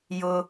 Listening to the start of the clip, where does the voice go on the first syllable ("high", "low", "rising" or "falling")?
high